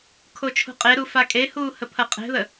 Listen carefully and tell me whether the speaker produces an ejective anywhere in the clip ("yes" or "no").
yes